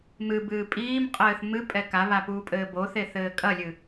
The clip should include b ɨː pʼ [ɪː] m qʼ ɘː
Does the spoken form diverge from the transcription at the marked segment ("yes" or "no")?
yes